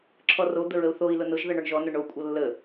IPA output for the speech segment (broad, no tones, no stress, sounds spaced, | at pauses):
ǁʰ ɔ r o d̪ ə ɹ ə u̯ θ o i̯ l ʊ n ʊ ʒ ð ʌ ɳ ɔ ɳ ʒ ɔ n ʊ ɳ o kʷʼ ʌ lː ə